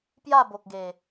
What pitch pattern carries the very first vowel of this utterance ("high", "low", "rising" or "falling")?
falling